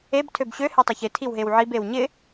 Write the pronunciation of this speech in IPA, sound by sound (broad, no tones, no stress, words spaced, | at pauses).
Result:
eb tʰøbɕø hetˤoçɪ tʰiwɦewʕib ewɲɪ